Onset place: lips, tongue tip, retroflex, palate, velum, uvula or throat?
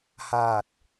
throat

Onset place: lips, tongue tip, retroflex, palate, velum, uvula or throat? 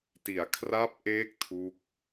tongue tip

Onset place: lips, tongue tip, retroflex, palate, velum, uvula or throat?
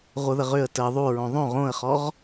uvula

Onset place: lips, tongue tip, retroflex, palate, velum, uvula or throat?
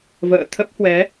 lips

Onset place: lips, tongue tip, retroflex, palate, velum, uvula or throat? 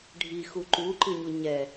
retroflex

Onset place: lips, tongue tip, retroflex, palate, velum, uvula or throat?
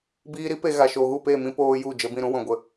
lips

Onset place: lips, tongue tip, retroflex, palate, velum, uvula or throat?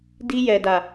tongue tip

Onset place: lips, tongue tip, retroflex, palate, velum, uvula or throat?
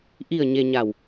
throat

